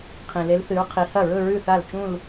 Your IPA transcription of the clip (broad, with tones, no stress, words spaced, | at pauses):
qʰĩ˩le˨˦l θɨ˨˦ɹqʰi˨˦hɐ˥˩ ɹɵ˥˧ɹʉ˥˩θa˥˩lt͡ʃũ˥˧l